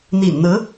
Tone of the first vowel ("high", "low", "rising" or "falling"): low